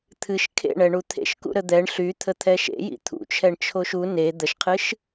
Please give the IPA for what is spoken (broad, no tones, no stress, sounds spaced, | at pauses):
t̪ʰ ɨ ʃ kʰ ḛ ɳ ɛ ɳ u t̪ʰ ḛ ʃ k ṵ ɾ ə d̪ ɛ ɳ ɬ y t̪ʰ ə t̪ʰ ɛ ʃ ḛ j ḭ t̪ʰ ṵ t͡ʃʰ ɛ ɳ t͡ʃʰ o ʃ u n e d̪ ə ʃ qʰ ɨ ʃ